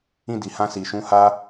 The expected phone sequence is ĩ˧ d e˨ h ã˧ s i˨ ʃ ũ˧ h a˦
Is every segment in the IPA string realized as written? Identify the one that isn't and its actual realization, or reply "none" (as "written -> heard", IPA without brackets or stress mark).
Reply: e˨ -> i˨